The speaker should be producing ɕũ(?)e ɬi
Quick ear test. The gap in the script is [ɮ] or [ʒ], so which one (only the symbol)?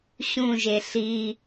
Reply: ʒ